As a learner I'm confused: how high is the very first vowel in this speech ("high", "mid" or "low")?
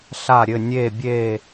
low